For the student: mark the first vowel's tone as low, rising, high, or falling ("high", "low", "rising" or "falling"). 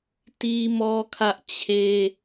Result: high